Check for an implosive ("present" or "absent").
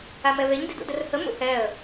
absent